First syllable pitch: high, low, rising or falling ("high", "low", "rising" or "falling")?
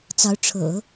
rising